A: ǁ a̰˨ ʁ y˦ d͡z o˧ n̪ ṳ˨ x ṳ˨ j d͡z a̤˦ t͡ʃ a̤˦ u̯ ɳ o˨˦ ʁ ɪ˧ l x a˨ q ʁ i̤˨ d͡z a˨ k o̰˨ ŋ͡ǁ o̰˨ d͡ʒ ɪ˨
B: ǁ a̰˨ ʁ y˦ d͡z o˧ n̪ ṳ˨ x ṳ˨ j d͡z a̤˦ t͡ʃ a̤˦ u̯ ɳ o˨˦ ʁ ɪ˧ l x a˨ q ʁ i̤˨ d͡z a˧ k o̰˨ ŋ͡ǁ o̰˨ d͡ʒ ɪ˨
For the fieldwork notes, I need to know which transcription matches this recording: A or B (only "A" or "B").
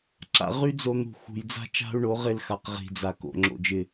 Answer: A